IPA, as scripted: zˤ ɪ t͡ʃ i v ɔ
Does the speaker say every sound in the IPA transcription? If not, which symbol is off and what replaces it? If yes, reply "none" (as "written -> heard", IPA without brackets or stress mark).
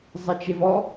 i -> e